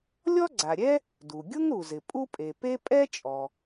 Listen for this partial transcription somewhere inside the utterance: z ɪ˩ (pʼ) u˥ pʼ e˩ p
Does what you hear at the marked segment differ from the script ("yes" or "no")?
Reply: no